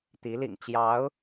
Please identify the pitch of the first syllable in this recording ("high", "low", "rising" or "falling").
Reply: rising